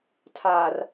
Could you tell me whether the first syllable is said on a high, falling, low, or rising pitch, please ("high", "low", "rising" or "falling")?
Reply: low